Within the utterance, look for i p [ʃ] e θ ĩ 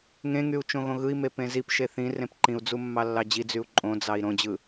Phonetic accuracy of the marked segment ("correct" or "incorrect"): correct